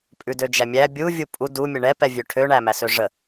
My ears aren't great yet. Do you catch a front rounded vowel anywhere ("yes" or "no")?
yes